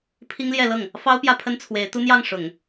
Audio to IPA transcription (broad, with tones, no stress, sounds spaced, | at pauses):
pʰ i˥ ŋ l j ɛ˥˧ l ɤ˥˩ ŋ | f ɑ˥ ʊ̯ p j ä˥˩ pʰ ə˥ n t͡sʰ w e˧˥ ɪ̯ t̪ u˥ n̪ j ɑ˥˩ ŋ ʂ ʊ˨˩˦ ŋ